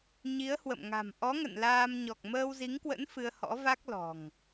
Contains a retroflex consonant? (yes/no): no